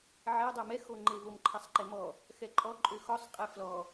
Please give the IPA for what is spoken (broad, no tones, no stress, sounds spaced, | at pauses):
ʕ ɛ dˤ o m ɛ x o ŋ͡ǃ e v o m ǃʰ ɛ sˤ ǃ e m ɔ | x ɛ ǃʼ ɔ ǃʼ ø x ɔ sˤ qʼ ɛ f l ɔ